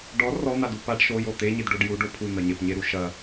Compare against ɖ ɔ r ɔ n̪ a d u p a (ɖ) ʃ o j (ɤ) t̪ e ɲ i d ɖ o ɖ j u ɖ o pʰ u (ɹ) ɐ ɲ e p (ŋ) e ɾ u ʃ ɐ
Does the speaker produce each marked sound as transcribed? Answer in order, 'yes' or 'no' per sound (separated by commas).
yes, no, no, no